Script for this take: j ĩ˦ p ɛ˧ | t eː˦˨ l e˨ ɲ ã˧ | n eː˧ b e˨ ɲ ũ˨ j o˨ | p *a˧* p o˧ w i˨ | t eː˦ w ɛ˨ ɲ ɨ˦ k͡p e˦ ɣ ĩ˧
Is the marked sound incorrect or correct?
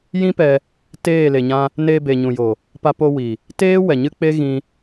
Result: correct